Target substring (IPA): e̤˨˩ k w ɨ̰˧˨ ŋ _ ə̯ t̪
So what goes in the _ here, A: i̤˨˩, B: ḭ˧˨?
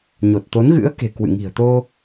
A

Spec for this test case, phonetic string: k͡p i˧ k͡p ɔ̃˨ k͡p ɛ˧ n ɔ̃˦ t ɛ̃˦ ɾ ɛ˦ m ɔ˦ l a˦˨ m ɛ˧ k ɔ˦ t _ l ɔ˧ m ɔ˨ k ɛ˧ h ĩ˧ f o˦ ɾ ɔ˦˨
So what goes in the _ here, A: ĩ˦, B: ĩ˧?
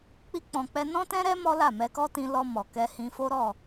B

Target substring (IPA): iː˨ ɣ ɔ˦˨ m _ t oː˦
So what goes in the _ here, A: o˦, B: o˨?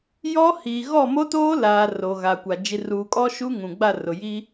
A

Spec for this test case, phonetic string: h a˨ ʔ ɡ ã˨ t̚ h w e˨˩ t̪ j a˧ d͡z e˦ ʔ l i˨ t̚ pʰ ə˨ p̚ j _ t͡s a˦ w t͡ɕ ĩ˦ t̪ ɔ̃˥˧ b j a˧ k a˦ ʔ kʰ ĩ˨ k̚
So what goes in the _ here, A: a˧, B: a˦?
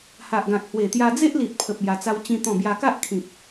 A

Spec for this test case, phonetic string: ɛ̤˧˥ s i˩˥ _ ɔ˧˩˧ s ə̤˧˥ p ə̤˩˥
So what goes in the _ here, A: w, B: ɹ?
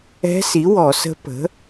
A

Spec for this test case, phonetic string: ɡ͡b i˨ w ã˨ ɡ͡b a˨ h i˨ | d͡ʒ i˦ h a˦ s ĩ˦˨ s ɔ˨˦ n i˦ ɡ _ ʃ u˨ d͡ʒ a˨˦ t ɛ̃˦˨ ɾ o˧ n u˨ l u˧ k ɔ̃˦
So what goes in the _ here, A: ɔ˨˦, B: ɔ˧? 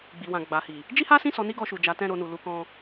B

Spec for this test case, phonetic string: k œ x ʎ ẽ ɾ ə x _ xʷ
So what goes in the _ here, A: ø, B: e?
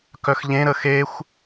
B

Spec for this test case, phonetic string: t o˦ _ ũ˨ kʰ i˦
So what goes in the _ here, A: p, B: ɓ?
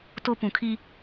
A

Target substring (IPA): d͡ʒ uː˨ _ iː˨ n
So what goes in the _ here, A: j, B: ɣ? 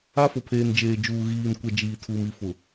B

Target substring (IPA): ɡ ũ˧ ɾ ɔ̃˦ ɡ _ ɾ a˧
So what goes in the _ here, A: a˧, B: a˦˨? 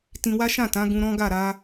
B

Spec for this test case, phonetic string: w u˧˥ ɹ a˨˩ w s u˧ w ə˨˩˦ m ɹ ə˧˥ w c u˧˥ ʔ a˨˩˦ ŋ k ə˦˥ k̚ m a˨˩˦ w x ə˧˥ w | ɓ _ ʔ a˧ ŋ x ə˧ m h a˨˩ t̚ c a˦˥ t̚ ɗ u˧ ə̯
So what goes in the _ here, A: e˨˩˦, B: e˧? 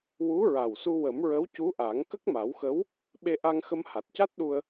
B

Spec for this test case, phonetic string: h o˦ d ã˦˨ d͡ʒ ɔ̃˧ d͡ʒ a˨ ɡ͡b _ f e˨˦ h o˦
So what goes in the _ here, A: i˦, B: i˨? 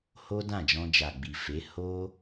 B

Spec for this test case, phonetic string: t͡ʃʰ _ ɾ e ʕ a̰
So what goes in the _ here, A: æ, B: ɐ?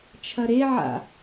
B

